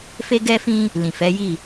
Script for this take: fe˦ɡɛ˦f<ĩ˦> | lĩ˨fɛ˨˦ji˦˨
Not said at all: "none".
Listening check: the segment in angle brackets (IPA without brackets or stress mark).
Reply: ĩ˦